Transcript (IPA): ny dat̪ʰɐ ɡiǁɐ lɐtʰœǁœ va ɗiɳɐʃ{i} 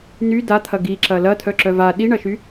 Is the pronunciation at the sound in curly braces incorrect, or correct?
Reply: incorrect